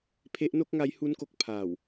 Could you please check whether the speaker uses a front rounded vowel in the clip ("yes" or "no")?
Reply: no